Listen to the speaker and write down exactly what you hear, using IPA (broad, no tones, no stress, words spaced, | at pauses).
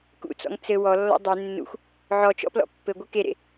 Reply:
kṵt͡sɔ̰ŋ t͡sɘ wɔlːɔ̰ dˤe nːṵxʷ | ʕɔt͡ʃɔ̰plɔ̰ pːɘɡʷɯ keɾḛ